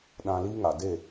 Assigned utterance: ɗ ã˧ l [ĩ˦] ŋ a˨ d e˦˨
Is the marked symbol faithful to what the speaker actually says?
no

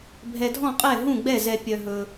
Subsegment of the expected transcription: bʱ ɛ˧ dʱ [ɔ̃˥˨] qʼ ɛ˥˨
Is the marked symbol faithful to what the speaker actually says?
yes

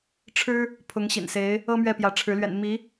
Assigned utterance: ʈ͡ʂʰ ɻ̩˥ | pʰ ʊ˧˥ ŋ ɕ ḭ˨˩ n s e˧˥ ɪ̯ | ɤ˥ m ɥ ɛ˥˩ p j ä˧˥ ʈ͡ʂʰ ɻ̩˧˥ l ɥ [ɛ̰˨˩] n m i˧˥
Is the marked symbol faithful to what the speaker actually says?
yes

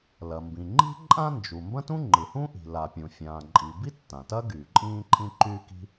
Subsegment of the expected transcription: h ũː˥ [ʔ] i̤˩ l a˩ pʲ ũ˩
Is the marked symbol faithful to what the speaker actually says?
yes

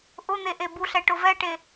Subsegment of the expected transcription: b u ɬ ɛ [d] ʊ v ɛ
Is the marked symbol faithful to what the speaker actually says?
no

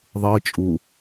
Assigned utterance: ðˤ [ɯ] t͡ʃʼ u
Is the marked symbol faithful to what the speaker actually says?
yes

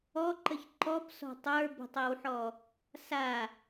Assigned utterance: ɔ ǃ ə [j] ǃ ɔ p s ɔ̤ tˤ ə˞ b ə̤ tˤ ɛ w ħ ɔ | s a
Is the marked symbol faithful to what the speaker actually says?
no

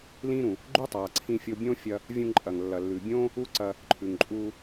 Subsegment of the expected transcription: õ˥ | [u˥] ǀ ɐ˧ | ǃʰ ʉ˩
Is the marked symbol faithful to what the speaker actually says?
yes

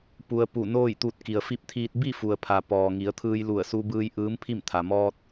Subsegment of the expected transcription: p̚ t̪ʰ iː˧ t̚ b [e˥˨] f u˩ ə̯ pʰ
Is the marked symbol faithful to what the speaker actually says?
no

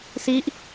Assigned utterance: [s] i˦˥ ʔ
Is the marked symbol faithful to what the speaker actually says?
yes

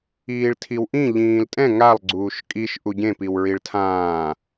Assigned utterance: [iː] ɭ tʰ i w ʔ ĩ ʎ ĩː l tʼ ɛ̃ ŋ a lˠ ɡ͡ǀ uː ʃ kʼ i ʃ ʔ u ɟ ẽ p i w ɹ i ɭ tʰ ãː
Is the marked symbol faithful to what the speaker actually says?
yes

